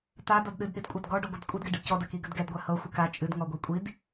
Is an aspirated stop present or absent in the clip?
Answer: absent